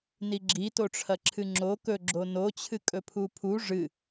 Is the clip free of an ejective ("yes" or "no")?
no